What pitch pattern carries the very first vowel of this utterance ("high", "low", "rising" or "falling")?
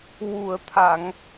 low